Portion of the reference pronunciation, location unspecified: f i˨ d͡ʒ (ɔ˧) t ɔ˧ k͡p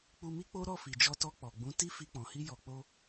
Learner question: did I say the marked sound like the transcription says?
yes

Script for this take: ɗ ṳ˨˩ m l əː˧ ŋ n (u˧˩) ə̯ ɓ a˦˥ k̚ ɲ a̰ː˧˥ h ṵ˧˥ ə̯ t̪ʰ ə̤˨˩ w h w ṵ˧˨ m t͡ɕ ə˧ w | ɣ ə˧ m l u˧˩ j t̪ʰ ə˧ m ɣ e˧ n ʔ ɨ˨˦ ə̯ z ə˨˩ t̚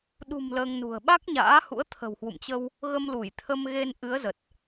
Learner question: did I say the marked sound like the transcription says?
no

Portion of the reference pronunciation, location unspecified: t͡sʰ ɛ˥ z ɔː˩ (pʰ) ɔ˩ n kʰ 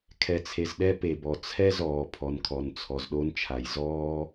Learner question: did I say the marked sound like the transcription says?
yes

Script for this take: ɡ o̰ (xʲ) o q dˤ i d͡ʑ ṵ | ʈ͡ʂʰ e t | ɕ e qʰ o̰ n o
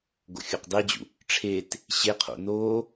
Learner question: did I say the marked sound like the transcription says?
yes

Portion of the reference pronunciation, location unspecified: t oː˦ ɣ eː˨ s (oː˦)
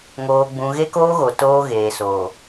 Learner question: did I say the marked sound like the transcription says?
no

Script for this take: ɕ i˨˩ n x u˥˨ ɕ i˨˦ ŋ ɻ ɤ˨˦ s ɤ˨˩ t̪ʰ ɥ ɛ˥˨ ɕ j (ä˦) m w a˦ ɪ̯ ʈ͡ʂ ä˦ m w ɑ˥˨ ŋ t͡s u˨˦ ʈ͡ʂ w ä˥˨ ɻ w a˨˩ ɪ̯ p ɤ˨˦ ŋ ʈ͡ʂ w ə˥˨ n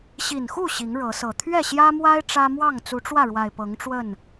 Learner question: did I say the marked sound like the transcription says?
yes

